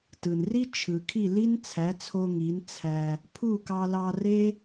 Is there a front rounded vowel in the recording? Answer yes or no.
no